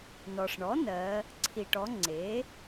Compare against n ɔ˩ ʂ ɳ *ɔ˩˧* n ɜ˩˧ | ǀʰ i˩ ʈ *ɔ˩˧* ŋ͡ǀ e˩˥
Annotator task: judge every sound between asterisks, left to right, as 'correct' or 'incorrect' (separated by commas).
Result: incorrect, correct